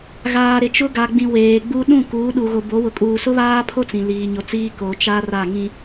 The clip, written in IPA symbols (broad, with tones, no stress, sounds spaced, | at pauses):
ɣ aː˨ ɾ ɪ˨ t͡ʃ ʊ˦ ɡ a˨ ɡ͡b ĩ˨ w eː˨ ɡ͡b u˦ ɗ ũ˦˨ k uː˨˦ ɗ u˨ ɣ o˨ b o˨˦ w ʊ˨˦ kʼ uː˨ s ʊ˦ β aː˦ pʰ o˦ t͡s ĩ˨ l iː˨ ɲ o˨ t͡s iː˦ k o˨ t͡ʃ a˦ r a˦˨ ŋ ĩ˦